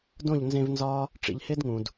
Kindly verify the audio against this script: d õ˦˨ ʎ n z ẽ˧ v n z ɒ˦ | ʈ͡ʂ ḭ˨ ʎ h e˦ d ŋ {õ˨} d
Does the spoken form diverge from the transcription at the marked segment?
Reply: yes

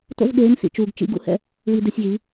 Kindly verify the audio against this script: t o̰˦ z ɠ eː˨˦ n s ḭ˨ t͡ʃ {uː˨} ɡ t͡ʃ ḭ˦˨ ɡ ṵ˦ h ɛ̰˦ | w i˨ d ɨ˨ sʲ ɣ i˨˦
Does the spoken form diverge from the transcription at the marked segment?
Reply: no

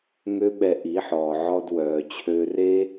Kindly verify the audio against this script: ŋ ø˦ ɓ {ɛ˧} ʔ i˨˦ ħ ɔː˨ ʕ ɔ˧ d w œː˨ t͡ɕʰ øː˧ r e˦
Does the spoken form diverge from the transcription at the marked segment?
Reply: no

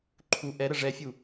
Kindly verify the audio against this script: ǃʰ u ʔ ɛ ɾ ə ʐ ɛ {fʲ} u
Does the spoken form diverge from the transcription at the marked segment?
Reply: no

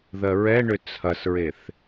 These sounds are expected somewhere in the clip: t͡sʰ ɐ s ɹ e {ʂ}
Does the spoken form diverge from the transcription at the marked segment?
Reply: yes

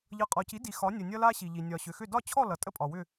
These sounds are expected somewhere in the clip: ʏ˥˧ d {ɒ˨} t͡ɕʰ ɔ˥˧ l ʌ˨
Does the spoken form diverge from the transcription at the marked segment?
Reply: yes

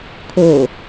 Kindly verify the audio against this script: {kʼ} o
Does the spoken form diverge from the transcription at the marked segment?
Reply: yes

